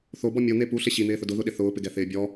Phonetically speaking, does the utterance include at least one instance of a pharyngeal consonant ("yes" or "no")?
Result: no